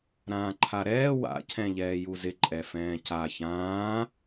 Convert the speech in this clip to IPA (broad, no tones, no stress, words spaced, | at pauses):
ɾãːǃʰaɾɛː wa̰ cʰɛ̃ʎɛːjuzɪ ǃʼɛfɛ̃ːca çãː